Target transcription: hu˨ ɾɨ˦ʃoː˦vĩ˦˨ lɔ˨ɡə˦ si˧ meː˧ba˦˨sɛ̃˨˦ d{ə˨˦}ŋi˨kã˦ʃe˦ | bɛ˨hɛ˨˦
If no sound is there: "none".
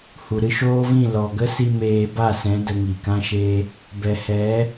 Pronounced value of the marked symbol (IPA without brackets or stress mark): ə˧